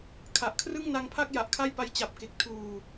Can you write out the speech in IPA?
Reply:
kʰa˨˩ʔ kʰrɯ˥˩ŋna˦˥ŋpʰa˥˩k̚ ja˨˩ʔkʰa˥˩jpa˦˥j t͡ɕa˨˩p̚ke˨˩k̚ tʰuː˨˩

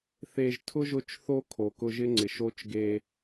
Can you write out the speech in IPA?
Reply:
θe˨ʒtʰʊ˦ ʒʊ˦t͡ʃθo˦ kʰo˨kʊ˦ ʒɪ˦ŋ͡ǀɪ˨ʃo˦t͡ʃ ɡe˦

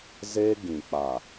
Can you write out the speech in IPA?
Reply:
zeː˦ɡĩ˨ k͡pa˨

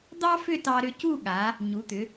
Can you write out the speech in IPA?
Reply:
d̪ɑ˥fʏ˥˧tɑ˧ ɾʏ˧cu˥˧ɠa˩˧ | ɲu˩˧t̪ʏ˩˧

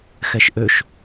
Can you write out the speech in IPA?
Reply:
xɛʃʔøʃ

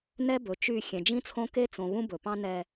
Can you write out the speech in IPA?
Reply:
nɛ˦bɵ˨t͡ʃy˦˨ xʲɛ̃˨d͡ʒĩ˦t͡sʰõ˦ ke˦t͡sõ˨βũ˦ bɵ˨pɑ̃˦ nɛ˨

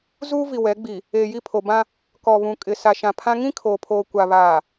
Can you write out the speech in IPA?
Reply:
zuː˦vi˨wɛ˨˦ɡ͡bi˨ | eː˨ji˦˨pʰo˨bã˦ | kɔ˨βũ˨kʼɪ˨ sa˨ʃã˨pʰã˦ ŋĩ˦ kʰoː˨pʰoː˨kʷa˨ βaː˨

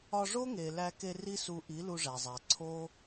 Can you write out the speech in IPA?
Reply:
ɒ˧ʐo˦ŋe˨ læ˧ke˧ ri˦su˧ʔi˨˦ lu˧ʐæ˨zˤæ˨ ǀʰo˦

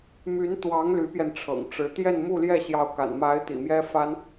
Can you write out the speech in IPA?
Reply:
my˧˥nt̪wɑ˧˥ŋ ly˧˥pjɛ˧nʈ͡ʂʰɤ̰˨˩ŋʈ͡ʂɻ̩˧˥ t̪jɛ˥˧nmu˥˧ljɛ˥˩ ɕjɑ˧˥ʊ̯ka̰˨˩nma˧˥ɪ̯ t̪ḭ˨˩mjɛ˥fa˥n

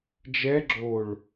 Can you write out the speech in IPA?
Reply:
d͡ʒɛ ɡ͡ǁoɭ

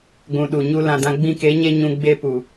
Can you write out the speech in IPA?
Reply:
ɡʷũ˨ɗu˨ɲu˧ lã˨dã˧ ɡ͡bĩ˧ke˨˦ɲe˧ ɲũ˧ ɡ͡be˧pu˨

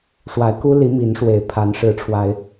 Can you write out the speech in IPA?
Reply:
ʂwa˨˦ɪ̯ku˦li˨˦ mi˨˦n ʂwe˨˩ɪ̯pʰa˨˦n ʂɻ̩˨˦ʈ͡ʂʰwa˨˦ɪ̯

